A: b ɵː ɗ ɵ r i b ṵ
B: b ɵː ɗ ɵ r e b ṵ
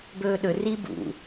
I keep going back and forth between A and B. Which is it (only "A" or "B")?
A